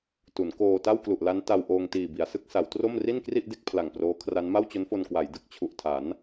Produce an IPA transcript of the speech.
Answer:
t u˩˦ n k oː˧ t a˥˩ w k l u˨˩ ʔ l a˦˥ n t a˧ w ʔ oː˧ ŋ t iː˨˩ b i˩˦ a̯ s ɯ˦˥ k̚ s a˩˦ w t r o˥˩ m r i˥˩ n k r i˥˩ ʔ d e˦˥ k̚ pʰ l a˨˩ ŋ p r oː˦˥ kʰ r a˦˥ n m a˥˩ w t͡ɕ o˦˥ n f o˧ n k w a˩˦ j d ɯ˨˩ k̚ t͡ɕʰ u˨˩ ʔ tʰ a˩˦ n

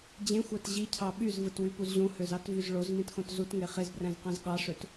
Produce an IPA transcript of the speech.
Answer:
d͡ʑ ẽ xʷ æ t ʑ i cʰ ɑ ɓ y z v ɯ t w y p u z ʑ ũ h ø z ɑ t v y z ɭ o z m ĩ t x õ t z u t ŋ e χ e z b r æ̃ z q æ̃ z ɠ ɑ ʂ ø t

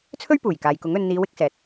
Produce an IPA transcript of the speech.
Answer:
t͡sʰ ɵ˥ ɥ p uː˨˩ j k aː˨ j k ʊ˨˥ ŋ ɵ˧ n n̪ iː˨˧ w ɪ˨˥ k̚ s ɛː˨ t̚

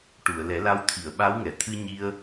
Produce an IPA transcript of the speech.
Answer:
ʈ u˨˩˨ ə̯ l ɛ˨˩˦ l a˧ w t̪ʰ i˨˩˨ ə̯ ɓ a˧˥ w ŋ ɛ˨˩˨ t̪ʰ ɨ˧ ɲ i˧ ə̯

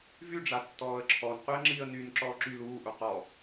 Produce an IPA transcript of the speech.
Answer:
v y ɖ͡ʐ a tː ɔː ə̯ ǁʰ ɔ n q y ə̯ ŋ͡ǁ i ə̯ n y n ǁ ɔː ǁ y l uː ʔ u q ɔ

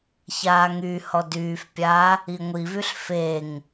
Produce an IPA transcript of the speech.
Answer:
ç aː ŋ y h ɔ d yː f pʲ aː | i ŋʷ i v y ɬ f e ŋ

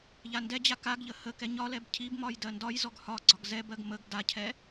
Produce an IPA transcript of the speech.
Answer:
ʎ a n d ɛ d͡ʑ a k a ɡ ʎ ə h ə k ɛ ɲ ɒ l ɛ b cʰ i b m ɒ j d ɜ n d ɒ j z ɔ ɡ h ɒ ɡ͡ǀ ɒ ɡ z ɛ b ɜ ɡ m ə ɡ d a cʰ ɛ

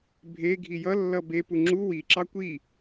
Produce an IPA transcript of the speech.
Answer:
bʱ e ɡʱ i j ʌ lː ʌ b e p u ŋ͡ǁ u w i ǁ ɑ kʷ i

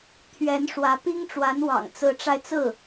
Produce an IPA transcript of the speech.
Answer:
t̪ʰ ɥ ɛ˧˥ n ʂ w ä˧˥ p i˥ ŋ ʈ͡ʂ w a˧˥ n w ɑ̰˨˩ ŋ t͡s ɹ̩˧˥ ʈ͡ʂ a˧ ɪ̯ t͡s ɹ̩˥˩

